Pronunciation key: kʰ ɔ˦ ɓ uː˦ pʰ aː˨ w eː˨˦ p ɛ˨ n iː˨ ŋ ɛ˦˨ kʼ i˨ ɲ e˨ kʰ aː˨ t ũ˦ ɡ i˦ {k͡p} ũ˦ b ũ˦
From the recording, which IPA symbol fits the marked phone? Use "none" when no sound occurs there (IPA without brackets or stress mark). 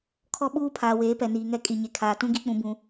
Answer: k͡p